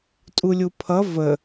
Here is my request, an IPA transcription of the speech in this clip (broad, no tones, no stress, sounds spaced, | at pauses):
tʼ u lʲ u pʰ ʌ v ə